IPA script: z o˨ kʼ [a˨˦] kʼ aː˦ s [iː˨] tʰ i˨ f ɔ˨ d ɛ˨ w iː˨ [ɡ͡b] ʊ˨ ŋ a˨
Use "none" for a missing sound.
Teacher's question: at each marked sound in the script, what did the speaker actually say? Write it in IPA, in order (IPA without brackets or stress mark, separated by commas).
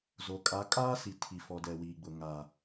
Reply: a˨˦, i˨, ɡ͡b